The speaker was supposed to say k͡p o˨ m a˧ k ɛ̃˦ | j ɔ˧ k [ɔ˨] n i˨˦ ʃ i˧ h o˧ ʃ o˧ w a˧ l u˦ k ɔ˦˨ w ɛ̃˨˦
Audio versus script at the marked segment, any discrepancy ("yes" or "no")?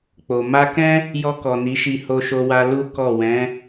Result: no